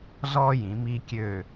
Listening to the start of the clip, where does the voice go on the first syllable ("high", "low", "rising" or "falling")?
high